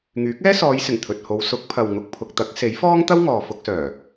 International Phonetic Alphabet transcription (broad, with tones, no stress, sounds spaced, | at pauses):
ŋ yː˨˥ k̚ ɛː˥ s ɔː˨˧ j s ɪ˨˩ ŋ t̪ʰ ɵ˨ t̚ h o˨˧ w s ʊ˨˥ k̚ pʰ ɐ˨ w ŋ ʊ˨ k̚ pʰ ʊ˨ k̚ t̪ ɐ˨˥ k̚ s e˨˥ j f ɔː˥ ŋ t̪ ɐ˥ w ŋ ɔː˨ f ʊ˧ k̚ s œː˨˩